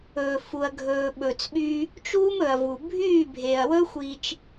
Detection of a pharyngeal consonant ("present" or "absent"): absent